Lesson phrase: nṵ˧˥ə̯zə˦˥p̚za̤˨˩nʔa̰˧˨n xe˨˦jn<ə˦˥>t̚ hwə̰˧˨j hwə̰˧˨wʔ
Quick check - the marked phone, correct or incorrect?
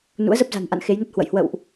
correct